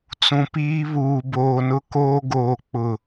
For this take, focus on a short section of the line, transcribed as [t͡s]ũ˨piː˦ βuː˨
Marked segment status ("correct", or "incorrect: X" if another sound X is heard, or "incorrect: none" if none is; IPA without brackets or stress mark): correct